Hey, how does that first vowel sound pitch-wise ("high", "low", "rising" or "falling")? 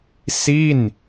falling